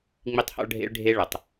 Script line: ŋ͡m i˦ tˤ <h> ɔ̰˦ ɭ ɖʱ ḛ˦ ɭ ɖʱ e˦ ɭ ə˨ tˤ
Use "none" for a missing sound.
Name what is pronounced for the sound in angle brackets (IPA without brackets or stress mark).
h